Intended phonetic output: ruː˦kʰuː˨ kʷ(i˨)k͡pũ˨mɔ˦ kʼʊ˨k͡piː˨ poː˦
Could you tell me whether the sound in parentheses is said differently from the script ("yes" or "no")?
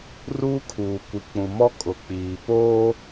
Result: no